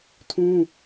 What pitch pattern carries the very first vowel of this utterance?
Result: high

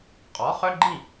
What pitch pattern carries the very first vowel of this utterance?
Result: rising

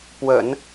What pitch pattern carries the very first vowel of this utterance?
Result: low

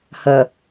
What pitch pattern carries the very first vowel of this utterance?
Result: low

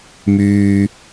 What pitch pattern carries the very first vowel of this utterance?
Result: low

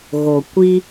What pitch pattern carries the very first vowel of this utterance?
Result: low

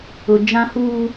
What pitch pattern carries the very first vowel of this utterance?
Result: high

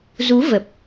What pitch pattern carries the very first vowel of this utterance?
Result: rising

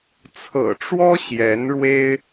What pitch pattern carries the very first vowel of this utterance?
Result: low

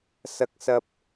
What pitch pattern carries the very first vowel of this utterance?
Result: high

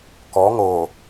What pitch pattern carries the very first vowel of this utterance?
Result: rising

